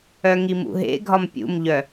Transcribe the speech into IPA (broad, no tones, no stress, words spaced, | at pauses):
œŋimṵɦḛ ɡʱɒmpʲṵmʎœ